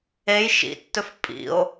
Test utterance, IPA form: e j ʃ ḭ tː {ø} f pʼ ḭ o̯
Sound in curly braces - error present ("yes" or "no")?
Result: yes